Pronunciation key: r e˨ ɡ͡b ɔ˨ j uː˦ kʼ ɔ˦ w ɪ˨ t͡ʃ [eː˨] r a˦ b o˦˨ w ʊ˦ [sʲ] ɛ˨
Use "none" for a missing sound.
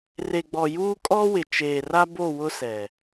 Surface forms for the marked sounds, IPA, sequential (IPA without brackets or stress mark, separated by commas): eː˨, s